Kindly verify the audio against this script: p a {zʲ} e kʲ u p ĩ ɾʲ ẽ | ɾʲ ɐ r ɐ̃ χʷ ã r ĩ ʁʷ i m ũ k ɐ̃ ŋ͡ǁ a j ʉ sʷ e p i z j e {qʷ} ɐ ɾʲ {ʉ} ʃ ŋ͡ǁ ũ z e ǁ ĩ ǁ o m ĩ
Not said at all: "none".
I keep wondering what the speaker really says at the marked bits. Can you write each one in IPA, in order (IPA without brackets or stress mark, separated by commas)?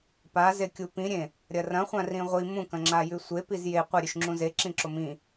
z, qʷ, ʉ